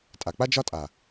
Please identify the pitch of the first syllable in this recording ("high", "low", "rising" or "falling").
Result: low